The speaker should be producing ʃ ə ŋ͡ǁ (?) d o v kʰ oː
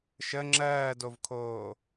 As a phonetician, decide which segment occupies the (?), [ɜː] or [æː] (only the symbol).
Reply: ɜː